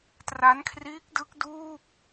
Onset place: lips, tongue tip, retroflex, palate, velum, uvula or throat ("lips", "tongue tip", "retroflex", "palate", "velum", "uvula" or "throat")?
tongue tip